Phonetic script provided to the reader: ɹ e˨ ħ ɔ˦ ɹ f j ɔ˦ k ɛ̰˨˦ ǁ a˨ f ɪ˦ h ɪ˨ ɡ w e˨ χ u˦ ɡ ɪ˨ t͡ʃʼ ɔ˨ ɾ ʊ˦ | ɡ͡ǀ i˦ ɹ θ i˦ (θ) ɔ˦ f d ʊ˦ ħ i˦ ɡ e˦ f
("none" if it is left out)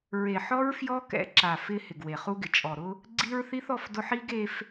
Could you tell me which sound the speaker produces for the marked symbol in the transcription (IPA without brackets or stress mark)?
θ